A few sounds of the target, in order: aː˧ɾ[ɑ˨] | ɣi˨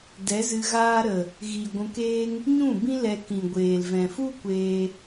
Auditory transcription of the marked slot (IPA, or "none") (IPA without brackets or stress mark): ə˨